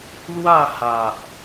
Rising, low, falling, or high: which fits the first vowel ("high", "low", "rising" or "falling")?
falling